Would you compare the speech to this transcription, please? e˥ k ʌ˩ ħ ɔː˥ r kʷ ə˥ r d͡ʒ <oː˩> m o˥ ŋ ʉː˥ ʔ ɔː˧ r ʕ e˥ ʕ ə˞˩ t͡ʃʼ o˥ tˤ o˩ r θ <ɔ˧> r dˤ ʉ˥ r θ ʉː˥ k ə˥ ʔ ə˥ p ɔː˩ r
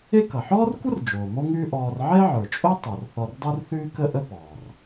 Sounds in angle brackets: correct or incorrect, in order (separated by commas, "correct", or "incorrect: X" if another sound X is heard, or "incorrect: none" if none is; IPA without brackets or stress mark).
correct, correct